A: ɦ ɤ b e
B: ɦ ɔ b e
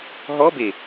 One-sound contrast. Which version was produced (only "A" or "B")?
B